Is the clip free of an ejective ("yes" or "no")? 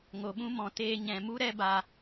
yes